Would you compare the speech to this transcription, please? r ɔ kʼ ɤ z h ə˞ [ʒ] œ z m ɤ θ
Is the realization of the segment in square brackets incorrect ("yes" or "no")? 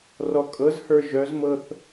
no